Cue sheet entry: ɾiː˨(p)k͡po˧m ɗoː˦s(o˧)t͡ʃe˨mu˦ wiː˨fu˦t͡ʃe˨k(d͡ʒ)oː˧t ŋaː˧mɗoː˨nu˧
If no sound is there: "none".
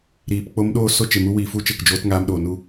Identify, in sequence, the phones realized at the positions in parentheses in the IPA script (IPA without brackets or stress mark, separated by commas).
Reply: p, o˦, d͡ʒ